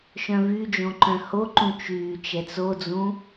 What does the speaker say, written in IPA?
ʃœ̃vyd͡ʒõ ǃœ̃hoǃũ t͡ʃyː t͡ʃɛt͡sod͡zũ

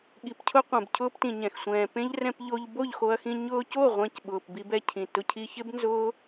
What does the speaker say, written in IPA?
ɠi˨pcʰʊ˧ qʷɛ̃˨bcʰʊː˧ptĩ˨ɲɛ̃˨x sʷɛ̃ː˨pẽ˦ʎ rɛ̃˧pʎo˧ʎ bo˦˨ʎxo˧ɐ̯xĩ˧ ɲʊː˧co˦˨ ʁʷɛ̃˧cɓʊː˨p bi˧bɛ˧cʰĩ˨ tʊ˧cʰi˧çɪ˦bnzʊː˦

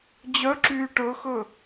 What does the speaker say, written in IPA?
d͡ʑœǁyː ʈɵxɵ

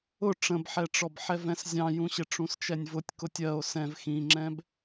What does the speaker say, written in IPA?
ʊ ʈ͡ʂə̃bħɛʈ͡ʂɔb ħɛvɛ̃szʲɑ̃jũ ɕɪʈ͡ʂũst͡ʃɛnʲvʊtʲ kʊtʲɜo̯ sɛ̃v xĩŋ͡ǁɛ̃b

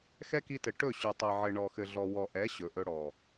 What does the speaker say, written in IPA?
xɛ˦ki˧tɘ˨ ʈɵ˦˨ ɕy˨ tˤe˨ʕɘ˨ ɳɔ˨xɘ˨ɮɔ˨ wɔ˨ʔɛ˨˦ ɕɵ˨ʔɵ˧ɽɔ˨

